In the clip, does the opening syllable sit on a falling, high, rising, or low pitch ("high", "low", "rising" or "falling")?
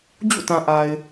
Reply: falling